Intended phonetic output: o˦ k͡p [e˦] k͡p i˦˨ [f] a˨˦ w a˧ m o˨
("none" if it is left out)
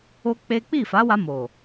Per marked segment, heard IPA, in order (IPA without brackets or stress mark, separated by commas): e˦, f